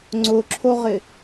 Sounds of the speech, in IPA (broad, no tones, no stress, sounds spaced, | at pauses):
ŋ͡ǀ ʊ ǁʰ o ʁ ɪ